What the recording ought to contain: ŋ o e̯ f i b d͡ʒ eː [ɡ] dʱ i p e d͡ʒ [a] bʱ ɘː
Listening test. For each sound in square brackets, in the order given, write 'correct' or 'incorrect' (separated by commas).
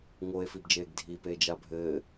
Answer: correct, correct